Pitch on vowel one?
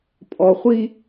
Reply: low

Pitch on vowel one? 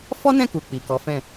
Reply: high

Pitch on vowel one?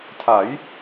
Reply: rising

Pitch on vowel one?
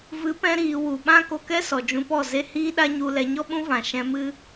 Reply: rising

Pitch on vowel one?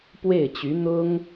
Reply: falling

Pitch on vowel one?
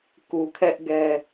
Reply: low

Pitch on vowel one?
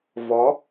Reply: rising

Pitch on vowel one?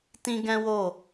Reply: high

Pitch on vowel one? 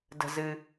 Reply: low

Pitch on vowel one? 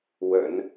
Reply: low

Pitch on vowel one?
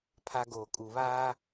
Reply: high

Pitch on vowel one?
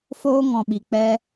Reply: high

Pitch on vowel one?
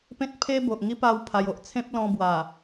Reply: high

